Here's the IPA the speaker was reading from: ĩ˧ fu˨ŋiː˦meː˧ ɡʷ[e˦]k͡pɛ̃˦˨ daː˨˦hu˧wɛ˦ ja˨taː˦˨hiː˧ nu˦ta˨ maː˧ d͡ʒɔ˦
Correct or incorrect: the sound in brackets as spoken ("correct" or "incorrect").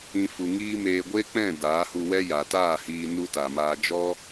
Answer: correct